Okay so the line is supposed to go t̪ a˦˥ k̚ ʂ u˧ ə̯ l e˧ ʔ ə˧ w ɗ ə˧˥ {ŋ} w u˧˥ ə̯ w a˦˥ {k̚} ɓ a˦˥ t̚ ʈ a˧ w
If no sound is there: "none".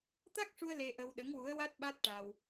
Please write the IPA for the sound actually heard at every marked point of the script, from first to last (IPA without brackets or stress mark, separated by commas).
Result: ŋ, t̚